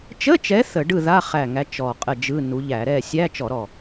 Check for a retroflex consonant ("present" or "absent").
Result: present